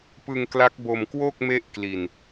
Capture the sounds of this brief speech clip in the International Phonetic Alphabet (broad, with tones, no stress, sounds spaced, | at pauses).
p ɯ˧ ŋ k l a˦˥ k̚ b o˧ m k w o˥˩ k̚ m e˦˥ ʔ k l i˨˩ n